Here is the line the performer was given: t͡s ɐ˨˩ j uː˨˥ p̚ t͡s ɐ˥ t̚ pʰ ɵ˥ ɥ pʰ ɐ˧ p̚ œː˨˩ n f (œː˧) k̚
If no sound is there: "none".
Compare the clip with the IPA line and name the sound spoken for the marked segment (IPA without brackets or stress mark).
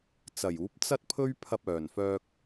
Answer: œː˧